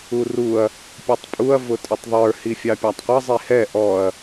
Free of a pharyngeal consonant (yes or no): yes